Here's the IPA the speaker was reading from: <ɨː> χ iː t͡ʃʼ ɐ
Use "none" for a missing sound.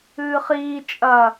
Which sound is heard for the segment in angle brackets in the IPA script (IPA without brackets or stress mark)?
ɨː